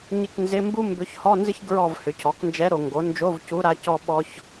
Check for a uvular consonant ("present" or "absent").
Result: absent